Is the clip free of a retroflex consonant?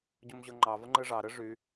no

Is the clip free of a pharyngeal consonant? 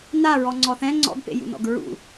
yes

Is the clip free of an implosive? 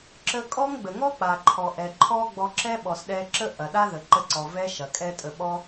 no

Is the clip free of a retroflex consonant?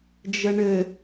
no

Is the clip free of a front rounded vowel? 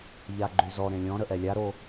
no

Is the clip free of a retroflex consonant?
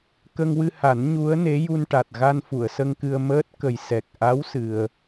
no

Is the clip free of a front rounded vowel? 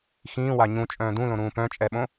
no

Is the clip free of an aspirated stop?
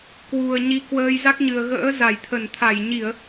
no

